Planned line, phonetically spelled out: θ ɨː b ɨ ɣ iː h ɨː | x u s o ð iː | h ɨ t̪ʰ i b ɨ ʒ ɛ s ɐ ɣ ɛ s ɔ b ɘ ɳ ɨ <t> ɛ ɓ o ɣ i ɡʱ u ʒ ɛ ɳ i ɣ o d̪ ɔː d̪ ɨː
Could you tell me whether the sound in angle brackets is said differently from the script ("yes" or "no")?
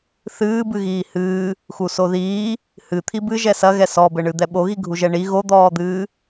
yes